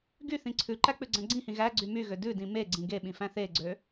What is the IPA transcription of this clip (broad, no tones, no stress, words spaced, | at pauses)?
ɡy θĩǀʰʉǃæ k͡pʉɡ͡ǀæ̃ɡ͡ǀĩhĩ ɣæɡ͡ǀy myɣø dʉdĩ meɡ͡ǀĩ ɡeɓĩ fæ̃θeɡ͡ǀø